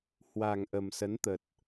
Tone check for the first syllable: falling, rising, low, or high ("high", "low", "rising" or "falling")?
low